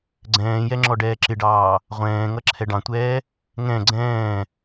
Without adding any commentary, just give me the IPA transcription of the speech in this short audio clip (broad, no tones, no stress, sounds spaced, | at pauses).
ɡ͡ǀ ɛ̃ː j ɛ ŋ͡ǁ ɔ ɖ ɛː ǁ ɪ ɖ ɑː | ʁʷ ɛ̃ː ŋ ʌ ǁʰ ɛ ɖ ɑ̃ tʷ ɛː | ŋ ɛ̃ ɡ͡ǀ ɛ̃ː